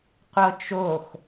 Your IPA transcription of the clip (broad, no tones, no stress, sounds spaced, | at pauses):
qʷ ɤ t͡ʃ o x